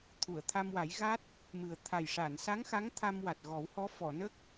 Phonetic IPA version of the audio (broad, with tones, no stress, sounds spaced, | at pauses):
t̪ʰ u˨˩˨ ə̯ t̪ʰ a˧ m w a˨˩˦ j ɣ a˦˥ t̚ | m ɨ˨˩ ə̯ t̪ʰ a˨˩ j ʂ a˨˩˨ n s a˧˥ ŋ x a˧˥ ŋ t̪ʰ a˧ m w a˨˩ t̚ ɣ ɔ˨˩˦ w h ɔ˧˥ f ɔ˨˩˨ n ə˦˥ k̚